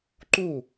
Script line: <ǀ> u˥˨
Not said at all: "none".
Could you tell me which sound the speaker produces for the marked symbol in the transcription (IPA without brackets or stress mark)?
ǃ